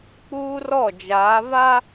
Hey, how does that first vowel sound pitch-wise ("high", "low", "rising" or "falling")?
high